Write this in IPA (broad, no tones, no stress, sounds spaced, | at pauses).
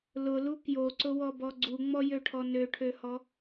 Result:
l ʊ l u k j o ǀ ʊ w ɔ b ɔ ɡ͡ǀ u ŋ͡m ɔ j ø ʈʰ ɔ n ø ʈʰ ø h ɔ